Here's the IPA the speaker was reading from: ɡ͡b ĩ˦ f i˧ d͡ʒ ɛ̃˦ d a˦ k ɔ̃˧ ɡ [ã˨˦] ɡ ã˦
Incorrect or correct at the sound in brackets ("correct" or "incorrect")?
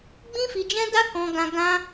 incorrect